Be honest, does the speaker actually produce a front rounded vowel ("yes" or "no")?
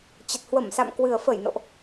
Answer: no